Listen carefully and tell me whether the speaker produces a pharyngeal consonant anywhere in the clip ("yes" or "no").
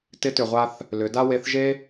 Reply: no